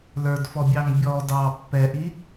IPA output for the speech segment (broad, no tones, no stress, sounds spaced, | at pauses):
l ə˞ d f ɔ bʲ ɑ ŋ bʲ ɔ d ɑ pː ɛ ʔ i